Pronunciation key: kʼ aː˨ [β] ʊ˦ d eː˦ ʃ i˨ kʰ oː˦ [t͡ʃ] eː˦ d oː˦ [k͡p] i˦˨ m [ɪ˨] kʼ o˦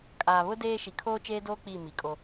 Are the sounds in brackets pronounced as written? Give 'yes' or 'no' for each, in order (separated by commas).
yes, yes, yes, no